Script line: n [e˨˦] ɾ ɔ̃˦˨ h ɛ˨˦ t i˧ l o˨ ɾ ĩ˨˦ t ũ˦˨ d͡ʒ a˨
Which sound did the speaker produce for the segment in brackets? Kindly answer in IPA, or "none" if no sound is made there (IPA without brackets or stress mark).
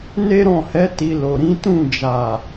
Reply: e˦